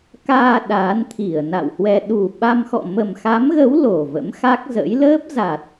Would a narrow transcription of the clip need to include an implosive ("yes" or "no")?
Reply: yes